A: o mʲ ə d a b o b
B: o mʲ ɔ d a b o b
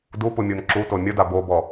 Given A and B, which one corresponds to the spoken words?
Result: A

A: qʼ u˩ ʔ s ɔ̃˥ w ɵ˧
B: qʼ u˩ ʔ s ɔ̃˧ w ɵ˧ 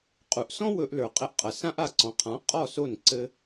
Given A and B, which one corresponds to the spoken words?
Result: A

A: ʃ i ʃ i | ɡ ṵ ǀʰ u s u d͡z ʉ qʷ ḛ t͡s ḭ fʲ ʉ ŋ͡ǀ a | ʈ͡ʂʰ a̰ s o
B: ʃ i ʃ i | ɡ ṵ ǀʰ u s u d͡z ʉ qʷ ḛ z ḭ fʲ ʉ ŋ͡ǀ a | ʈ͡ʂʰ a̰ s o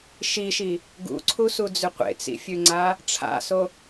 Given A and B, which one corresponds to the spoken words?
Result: A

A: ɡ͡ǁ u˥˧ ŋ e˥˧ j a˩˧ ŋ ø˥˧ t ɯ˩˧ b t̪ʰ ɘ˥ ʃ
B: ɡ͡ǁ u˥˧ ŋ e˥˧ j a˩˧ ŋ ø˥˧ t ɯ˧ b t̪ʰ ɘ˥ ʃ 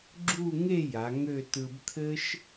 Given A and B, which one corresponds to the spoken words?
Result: B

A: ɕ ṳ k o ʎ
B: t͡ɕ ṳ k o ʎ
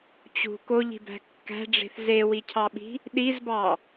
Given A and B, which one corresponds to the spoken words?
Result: B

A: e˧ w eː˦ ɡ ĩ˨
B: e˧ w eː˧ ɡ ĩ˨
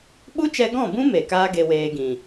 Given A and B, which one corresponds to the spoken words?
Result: B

